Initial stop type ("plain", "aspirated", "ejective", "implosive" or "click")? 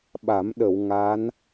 implosive